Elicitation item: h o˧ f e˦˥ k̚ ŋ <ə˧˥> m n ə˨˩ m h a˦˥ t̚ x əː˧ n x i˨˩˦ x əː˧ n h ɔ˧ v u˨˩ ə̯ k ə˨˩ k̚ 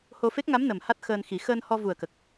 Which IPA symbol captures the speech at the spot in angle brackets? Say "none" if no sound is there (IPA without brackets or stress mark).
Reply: a˧˥